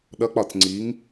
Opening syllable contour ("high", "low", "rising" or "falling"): rising